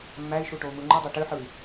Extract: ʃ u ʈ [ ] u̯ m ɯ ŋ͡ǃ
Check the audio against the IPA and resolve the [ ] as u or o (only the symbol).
o